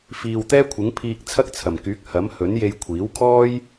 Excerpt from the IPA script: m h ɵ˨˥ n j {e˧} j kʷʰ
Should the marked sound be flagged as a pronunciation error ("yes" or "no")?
no